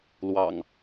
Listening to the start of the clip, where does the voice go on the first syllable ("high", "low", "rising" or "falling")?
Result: low